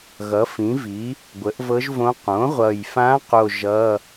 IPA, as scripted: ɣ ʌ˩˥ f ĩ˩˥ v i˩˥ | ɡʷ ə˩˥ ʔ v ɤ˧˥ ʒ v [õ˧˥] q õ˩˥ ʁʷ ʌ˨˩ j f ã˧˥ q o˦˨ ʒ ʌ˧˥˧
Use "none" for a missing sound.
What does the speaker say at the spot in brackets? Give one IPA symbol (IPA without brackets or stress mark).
õ˧˥